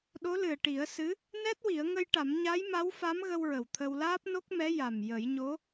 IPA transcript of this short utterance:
ɗ o˧˥ l ɨ˨˩ ə̯ ʈ i˨˩˦ ə̯ s ɨ˧˥ | n ɛ˦˥ t̚ w i˨˩˦ ə̯ ŋ ə˧ j ʈ a˨˩˦ m ɲ a˧˥ j m a˧˥ w f a˧˥ m ɣ ə˧ w ɹ ə˨˩ w t̪ʰ ə˧ w l aː˦˥ p̚ n o˦˥ k̚ m ɛ˧˥ j a˨˩ m j ə˨˩˦ j ɲ o˧˥

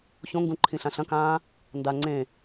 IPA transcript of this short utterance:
ç õ ŋ ɡ ũ ǃʰ ĩ ɬ ã ɬ ɐ̃ k ãː | n d a ŋ͡ǀ ẽ

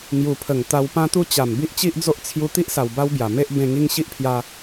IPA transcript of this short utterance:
ŋ j u˨˩ pʰ ə˨˩ ŋ t̪ a˧ w p ã˦ t̪ u˦ t͡ɕ a˨˩ m b i˦ ʔ t͡ɕ i˦ ʔ d͡z o˦ ʔ t͡sʰ j u˧ t̪ i˦ ʔ s a˨˩ w b a˦ w b j a˨˩ m e˦ ʔ b ẽ˧ ŋ i˧ ŋ ɕ i˦ ʔ pʰ j a˧

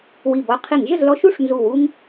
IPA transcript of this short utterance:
w i˧˩ b ɔ˦ qʰ i˧˩˧ ŋ ʒ ə˥˨ z l ɔ˦ ʃ u˥˨ ʂ n z u˧˩ w u˦ ŋ

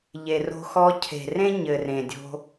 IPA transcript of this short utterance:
ʎ e˨ r o̤˧ x ɔ˧ cʰ e̤˨ r ẽ˦ ɲ ɘ˨ r ẽ˨ dʲ o̤˧

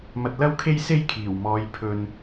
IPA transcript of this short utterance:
m ɐ˧ t̚ l ɐ˥ w kʰ e˥ j s e˥ j kʰ iː˨˩ w m ɔː˨˧ j pʰ ɵ˧ n

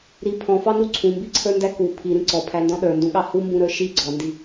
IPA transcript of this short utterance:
ɾ i pʰ ɔ̃ f ɑ n u ǀʰ ũ m b i ǀʰ ə˞ n d æ k u pʰ i ɾ ĩ ǀ ɔ pʰ æ n d ɔ̃ ɗ ə˞ n d ũ ɠ ɑ h u m b ũ ɾ ə˞ ʃ i ɡ͡ǀ ɔ n d i

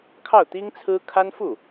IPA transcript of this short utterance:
kʰ ɑ˥˩ ʊ̯ t̪ i˥ ŋ t͡sʰ ɹ̩˥ kʰ a˥ n f u˥˩

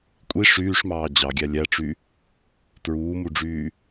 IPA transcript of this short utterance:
kʷʼ i ʂ yː ʂ m ɑː d͡ʑ ɑ ɡʲ æ lʲ æ ʈ͡ʂ y | t ɹ uː m u ɖ͡ʐ yː

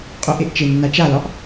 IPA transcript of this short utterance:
qʼ o ʔ e ʔ t͡ʃ e nː a t͡ʃ a l ɒ ʔ

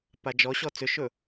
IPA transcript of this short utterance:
p a d͡ʒ ɔ ɕ ɔ t͡s ʏ ʃ ɵ

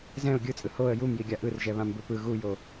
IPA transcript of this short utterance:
z ɛ̃ ʊ̯ ɡʲ ɯ t͡sʼ ɯ h o ə̯ j u m j i ɡʲ a ʔ ɯ r ʒ ɛ β ã m b ɯ p ɯ ɣ u j o

